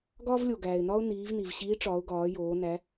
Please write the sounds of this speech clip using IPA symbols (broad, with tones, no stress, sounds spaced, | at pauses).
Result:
ɡ ɒː˥ v lʲ o˩ ɡ æː˩ ɪ̯ n ɒ˥ ʊ̯ n iː˩˧ v n i˩ v ɕ iː˧˥ ʈ͡ʂ ɒː˩˧ ʊ̯ ɡ ɒː˩˧ j oː˩˧ n æ˧˥